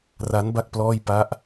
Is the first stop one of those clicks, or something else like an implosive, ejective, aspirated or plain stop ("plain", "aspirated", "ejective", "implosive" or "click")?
plain